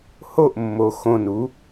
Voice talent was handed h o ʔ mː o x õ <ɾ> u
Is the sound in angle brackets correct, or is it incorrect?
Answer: incorrect